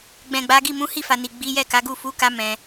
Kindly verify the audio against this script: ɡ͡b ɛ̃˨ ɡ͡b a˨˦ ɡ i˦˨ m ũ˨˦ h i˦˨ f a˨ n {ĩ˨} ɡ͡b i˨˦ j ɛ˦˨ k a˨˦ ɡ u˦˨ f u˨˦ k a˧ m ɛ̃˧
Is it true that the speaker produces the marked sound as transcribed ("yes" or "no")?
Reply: no